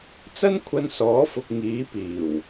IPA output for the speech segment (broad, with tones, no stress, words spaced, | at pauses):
t͡sɐ˥nkʷʰɐ˧nsɔː˨˥fʊ˨k̚ ŋiː˨˥piː˨˩w